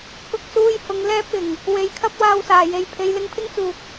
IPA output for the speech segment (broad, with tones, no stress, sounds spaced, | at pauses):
k ʊ˧ k̚ s uː˧ j h ʊ˨˧ ŋ l ɛː˧ p̚ ɪ˨˩ ŋ | w e˨˧ j kʰ ɐ˥ p̚ w aː˧ w s aː˨˩ j e˨ j pʰ e˨˧ j l ɪ˧ ŋ pʰ ɪ˥ ŋ t͡s uː˨ k̚